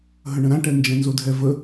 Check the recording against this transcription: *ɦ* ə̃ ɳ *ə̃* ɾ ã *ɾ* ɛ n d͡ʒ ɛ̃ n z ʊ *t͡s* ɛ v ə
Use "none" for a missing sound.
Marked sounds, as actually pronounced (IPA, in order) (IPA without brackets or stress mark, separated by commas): ɦ, ə̃, ʈ, dʱ